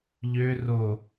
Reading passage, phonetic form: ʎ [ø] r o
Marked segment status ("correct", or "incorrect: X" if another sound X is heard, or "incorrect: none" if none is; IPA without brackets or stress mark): correct